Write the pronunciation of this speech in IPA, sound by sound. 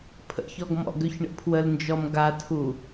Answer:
pʰ ə̰ ç ɔ ɡ m ɔ̰ ɡ ø ç ɳ ə̰ pʰ w ə l n d͡ʒ ɔ m ɡ a tʰ u

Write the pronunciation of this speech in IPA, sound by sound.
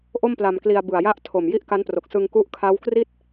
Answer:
ʔ o˥˩ m p l a˧ m k l i˧ a̯ b ɯ˨˩ a̯ j a˦˥ ʔ tʰ o˨˩ m j i˥˩ ʔ k a˦˥ n p r o˨˩ k̚ s ɯ˧ ŋ k u˦˥ ʔ kʰ a˦˥ w k r i˥˩ t̚

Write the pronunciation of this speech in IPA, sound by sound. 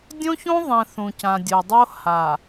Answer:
dʲ õ˦ ç õ˦ ðˤ ɛ̃˨ θ ũ˨ c ã˨ dʲ o˨ dˤ o˦ h a˨

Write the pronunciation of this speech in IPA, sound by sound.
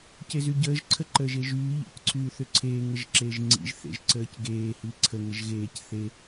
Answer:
c e z y ɟ əː ʒ ǀʰ ə ǃ əː ʒ e ʒ yː ʎ ḭ c ǀʰ yː θ ʏ ǀʰ eː ŋ ə ʒ ǁ eː ʒ ŋ͡ǀ ḭ ʒ θ ḛ ʒ ǀ əː c ɡ eː h i ǀʰ ə ŋ ə ʒ ɣ eː c θ e

